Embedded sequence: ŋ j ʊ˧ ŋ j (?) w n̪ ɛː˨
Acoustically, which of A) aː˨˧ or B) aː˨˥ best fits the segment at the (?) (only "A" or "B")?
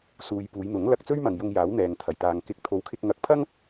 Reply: B